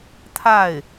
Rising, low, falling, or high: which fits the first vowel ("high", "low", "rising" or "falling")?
falling